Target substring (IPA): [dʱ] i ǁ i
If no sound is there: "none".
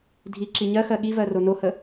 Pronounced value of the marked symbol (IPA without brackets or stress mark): dʱ